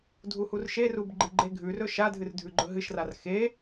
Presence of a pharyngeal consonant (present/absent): absent